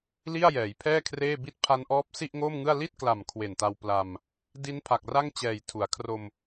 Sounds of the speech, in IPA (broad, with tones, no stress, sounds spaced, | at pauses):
l i˥˩ a̯ j ɛː˩˦ j pʰ ɛː˥˩ kʰ r eː˥˩ b i˦˥ t̚ pʰ a˦˥ n ʔ ɔː˦˥ p̚ s i˥˩ ʔ ŋ oː˥˩ m ŋ ɯ˥˩ a̯ l i˥˩ t̚ k l a˨˩ m kʰ w e˨˩ n t a˧ w p l a˧ m | d i˦˥ n pʰ a˨˩ k̚ r a˥˩ ŋ t͡ɕ ɛː˨˩ j tʰ u˩˦ a̯ kʰ r o˧ m